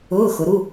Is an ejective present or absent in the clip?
absent